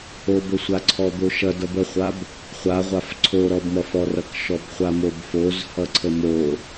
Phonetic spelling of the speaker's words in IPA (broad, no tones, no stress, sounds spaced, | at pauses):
o b ə sʷ a ǀʰ ɔ d̪ o ʃ ʌ d ʌ b ə χʷ a b | χʷ a ʁʷ a f ǀʰ o ɾ ɔ b m ʌ f ɔ r ʌ k ʃ ɔ b χʷ a m o b f o z h ʌ ǀʰ ə m o